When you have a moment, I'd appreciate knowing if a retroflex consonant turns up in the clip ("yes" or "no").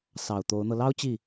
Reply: no